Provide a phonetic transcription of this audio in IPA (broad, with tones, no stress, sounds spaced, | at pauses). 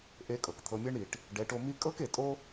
ʔ e˧ kʼ ɤ˨ k t̪ʰ ɤ˧ mʲ ɤ˦ ɳ ɾ i˨ ʈ | ɖ ɛ˨˦ ʈ o˧ m i˦ kʼ ɤ˦ k e˨ tʼ o˦